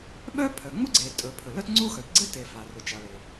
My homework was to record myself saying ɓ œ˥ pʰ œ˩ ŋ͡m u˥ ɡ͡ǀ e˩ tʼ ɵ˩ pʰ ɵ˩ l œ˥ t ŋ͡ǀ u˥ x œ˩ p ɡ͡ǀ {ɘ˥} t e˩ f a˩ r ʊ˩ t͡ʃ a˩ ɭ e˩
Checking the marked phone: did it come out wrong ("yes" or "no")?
no